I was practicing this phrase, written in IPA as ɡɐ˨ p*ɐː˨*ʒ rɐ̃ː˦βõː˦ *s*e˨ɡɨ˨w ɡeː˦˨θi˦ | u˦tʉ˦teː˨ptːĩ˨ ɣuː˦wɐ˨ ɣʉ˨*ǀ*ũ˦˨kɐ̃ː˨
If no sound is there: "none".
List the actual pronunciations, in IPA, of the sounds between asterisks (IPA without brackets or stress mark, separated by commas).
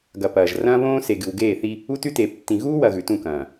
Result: ɐː˨, s, t